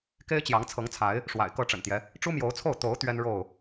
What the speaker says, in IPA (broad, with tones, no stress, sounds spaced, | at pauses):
k e˦ ɪ̯ t͡ɕ j ɑ˨˦ ŋ t͡sʰ ɤ˨˦ ŋ t͡sʰ a˨˦ ɪ̯ | ʂ w a̰˨˩ ɪ̯ k ɤ˥˨ ʈ͡ʂ ə̰˨˩ n t̪ j ɛ˦ | ʈ͡ʂ u˦ m j o˨˦ ʊ̯ t͡sʰ o˥˨ ʊ̯ t̪ o˨˦ ʊ̯ t̪ ɥ ɛ˦ n ɻ o˥˨ ʊ̯